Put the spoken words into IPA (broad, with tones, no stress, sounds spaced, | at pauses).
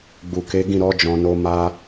ɡ͡b u˨ k e˨˦ ɡ ĩ˦˨ ɾ ɔ˨˦ d͡ʒ ɔ̃˧ n o˦ m a˧